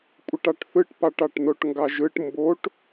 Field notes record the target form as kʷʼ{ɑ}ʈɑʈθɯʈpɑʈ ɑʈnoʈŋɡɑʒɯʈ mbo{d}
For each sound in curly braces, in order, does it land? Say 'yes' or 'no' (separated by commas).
no, no